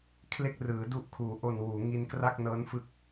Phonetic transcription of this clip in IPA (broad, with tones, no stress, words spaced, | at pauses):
kʰle˥˩k̚rɯː˩˦ du˦˥ʔkʰuː˩˦ʔo˨˩n wuː˩˦ŋi˧nkra˥˩k̚ nɤː˦˥nfɯ˦˥k̚